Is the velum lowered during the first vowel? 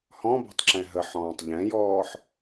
yes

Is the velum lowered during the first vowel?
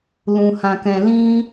yes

